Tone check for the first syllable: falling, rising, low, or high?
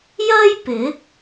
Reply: high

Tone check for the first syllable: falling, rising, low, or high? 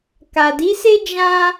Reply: low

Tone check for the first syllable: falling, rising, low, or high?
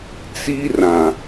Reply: high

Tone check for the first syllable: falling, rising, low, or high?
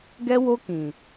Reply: high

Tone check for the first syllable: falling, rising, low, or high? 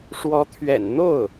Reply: rising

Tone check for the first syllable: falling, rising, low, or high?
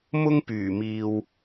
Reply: high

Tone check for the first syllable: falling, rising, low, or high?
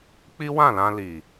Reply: high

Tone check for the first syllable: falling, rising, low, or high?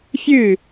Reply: falling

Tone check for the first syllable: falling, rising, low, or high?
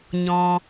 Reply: low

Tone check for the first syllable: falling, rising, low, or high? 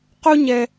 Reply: high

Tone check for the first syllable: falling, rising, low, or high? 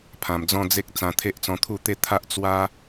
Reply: low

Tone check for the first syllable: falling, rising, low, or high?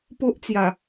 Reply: high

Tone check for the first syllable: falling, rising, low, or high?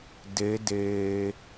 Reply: rising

